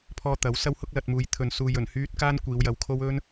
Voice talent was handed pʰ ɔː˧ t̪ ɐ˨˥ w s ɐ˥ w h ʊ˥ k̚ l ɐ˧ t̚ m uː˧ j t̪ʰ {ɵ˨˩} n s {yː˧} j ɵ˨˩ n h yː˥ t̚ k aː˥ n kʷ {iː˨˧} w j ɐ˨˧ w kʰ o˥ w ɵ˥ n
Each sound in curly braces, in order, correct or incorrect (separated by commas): incorrect, incorrect, correct